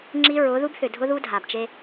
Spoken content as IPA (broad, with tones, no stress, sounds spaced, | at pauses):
ŋ͡ǁ i˦ ɹ ʊ˨˦ ð u˦ b θ ʏ˨ dʱ ʊ˦ ð u˦ dʱ a˨ b t͡ʃ e˦